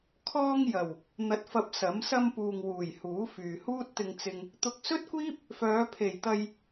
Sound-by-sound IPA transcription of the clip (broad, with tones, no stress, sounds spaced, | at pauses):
kʰ ɔː˧ ŋ j ɐ˨˩ w | n̪ ɐ˨˥ t̚ f ɐ˧ p̚ s ɐ˨˥ m s ɐ˧ m p uː˨ ŋ w uː˨˩ j h uː˨˥ f yː˨ h uː˥ t̚ t̪ ɪ˧ ŋ t͡s ɪ˧ ŋ | t̪ ʊ˨ k̚ s ɵ˥ t̚ kʷ iː˥ p̚ | f œː˨˧ pʰ e˨˩ j t̪ ɐ˧ j